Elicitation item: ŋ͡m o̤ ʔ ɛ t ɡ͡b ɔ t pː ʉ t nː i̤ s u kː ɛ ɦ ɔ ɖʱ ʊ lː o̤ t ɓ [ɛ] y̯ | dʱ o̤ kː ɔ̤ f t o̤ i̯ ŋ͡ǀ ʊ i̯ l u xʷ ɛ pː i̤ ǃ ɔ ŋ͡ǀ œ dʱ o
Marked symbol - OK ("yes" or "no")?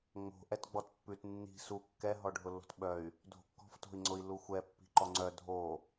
no